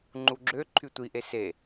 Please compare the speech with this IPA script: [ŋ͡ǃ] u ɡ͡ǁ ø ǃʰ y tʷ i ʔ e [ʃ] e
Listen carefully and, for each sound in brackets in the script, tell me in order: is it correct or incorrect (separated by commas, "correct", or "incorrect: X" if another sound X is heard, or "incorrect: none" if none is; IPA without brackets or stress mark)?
correct, incorrect: s